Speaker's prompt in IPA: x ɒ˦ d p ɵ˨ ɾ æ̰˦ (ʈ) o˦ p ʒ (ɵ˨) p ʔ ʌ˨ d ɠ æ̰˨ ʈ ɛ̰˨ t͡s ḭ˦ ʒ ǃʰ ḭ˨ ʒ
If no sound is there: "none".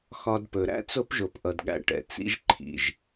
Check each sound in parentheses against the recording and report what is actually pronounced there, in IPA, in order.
t͡s, o˨

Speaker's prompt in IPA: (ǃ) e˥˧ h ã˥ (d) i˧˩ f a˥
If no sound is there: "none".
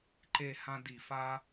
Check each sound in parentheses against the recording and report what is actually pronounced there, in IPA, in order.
ǃ, d

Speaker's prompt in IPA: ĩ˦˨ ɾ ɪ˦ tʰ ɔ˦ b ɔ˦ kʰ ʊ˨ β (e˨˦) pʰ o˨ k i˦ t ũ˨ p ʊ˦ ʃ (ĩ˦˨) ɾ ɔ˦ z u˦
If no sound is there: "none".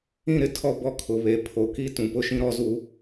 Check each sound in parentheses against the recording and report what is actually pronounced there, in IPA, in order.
e˨˦, ĩ˦

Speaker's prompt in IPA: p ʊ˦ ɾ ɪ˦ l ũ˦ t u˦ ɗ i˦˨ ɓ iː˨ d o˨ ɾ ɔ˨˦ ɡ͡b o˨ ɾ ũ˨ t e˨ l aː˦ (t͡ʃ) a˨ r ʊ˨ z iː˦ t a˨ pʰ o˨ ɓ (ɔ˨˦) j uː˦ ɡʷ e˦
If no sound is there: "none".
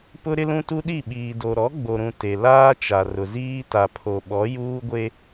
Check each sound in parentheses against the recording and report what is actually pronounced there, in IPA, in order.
t͡ʃ, ɔ˨˦

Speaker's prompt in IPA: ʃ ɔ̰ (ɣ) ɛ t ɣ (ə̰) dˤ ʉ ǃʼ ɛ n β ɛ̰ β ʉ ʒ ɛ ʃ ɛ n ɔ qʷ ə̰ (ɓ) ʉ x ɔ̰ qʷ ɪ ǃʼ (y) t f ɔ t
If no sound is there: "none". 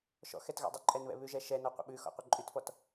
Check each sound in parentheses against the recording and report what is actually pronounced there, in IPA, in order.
x, ɔ̰, ɓ, y

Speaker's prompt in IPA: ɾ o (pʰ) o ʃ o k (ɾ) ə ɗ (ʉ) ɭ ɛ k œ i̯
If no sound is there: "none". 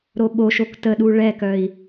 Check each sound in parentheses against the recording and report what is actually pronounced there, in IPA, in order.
ɓ, t, u

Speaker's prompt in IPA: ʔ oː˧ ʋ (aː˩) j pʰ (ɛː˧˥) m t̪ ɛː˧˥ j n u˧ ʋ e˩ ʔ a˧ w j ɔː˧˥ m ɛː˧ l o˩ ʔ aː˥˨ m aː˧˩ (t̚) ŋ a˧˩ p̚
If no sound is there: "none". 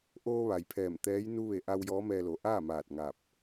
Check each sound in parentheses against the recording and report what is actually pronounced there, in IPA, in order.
a˩, ɛː˧˩, t̚

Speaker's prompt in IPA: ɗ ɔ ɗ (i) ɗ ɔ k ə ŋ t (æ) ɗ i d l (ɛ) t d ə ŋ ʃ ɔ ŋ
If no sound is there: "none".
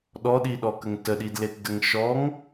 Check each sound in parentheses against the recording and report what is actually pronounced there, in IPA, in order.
i, ə, e

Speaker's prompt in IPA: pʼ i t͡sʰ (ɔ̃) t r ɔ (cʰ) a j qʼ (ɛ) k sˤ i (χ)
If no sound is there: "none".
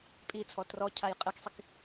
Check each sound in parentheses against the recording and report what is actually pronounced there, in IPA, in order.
ɔ, cʰ, ɛ, k

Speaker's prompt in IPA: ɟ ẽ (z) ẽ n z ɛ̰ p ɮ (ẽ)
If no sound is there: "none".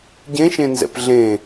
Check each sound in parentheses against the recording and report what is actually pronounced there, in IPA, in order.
ʃ, ẽ

